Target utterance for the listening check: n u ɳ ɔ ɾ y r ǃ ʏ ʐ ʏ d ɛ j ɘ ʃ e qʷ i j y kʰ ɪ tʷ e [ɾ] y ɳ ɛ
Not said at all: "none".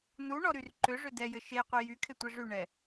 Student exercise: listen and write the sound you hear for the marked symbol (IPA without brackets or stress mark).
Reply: ʐ